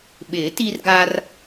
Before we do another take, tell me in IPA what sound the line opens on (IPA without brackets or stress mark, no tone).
ɓ